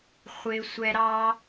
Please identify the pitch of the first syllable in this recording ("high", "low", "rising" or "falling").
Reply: high